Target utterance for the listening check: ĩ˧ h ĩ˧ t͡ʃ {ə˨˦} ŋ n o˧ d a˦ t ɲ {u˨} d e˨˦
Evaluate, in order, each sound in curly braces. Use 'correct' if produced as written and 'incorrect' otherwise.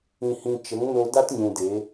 correct, incorrect

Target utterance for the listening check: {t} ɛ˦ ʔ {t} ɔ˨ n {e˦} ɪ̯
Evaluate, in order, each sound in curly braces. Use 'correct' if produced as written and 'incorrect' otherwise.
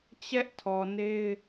incorrect, incorrect, correct

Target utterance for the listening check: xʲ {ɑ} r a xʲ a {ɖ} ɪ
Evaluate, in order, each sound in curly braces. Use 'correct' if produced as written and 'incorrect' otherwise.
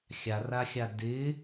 incorrect, incorrect

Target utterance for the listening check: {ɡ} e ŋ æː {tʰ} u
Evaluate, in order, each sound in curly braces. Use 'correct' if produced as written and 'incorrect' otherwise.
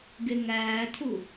correct, correct

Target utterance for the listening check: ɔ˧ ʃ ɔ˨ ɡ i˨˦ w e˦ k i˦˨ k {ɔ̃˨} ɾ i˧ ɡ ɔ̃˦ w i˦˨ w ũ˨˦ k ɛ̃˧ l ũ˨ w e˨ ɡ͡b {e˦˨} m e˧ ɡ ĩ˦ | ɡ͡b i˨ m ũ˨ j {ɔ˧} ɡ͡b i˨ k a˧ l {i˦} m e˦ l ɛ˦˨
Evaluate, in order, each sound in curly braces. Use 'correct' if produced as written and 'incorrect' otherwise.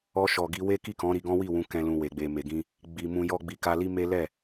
incorrect, incorrect, correct, correct

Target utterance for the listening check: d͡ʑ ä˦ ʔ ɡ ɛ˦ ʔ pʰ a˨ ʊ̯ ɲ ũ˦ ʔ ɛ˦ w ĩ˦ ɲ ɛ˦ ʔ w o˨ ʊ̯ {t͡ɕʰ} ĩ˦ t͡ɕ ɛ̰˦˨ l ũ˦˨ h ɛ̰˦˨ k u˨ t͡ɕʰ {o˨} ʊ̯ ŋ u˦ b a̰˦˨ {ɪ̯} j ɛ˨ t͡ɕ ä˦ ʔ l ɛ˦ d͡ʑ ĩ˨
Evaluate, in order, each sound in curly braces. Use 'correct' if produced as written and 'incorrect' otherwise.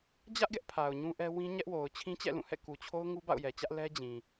correct, incorrect, incorrect

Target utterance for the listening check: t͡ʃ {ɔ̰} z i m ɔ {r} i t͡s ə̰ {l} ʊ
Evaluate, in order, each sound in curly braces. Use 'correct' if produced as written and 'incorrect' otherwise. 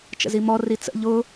incorrect, correct, incorrect

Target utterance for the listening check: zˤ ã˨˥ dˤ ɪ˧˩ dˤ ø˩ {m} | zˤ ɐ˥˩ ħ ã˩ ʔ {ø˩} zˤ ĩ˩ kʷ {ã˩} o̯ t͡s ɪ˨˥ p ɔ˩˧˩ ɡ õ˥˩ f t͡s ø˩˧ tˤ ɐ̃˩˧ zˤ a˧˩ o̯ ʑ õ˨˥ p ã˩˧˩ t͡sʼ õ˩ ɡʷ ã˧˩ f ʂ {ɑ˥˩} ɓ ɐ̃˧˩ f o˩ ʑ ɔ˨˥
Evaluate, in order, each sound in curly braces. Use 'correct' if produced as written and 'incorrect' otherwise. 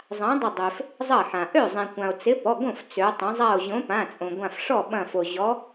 incorrect, incorrect, correct, incorrect

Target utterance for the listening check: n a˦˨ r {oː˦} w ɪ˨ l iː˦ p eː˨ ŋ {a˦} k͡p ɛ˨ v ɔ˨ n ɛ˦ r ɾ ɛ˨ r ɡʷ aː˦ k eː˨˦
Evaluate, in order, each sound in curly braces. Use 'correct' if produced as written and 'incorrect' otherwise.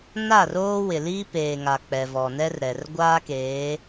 correct, incorrect

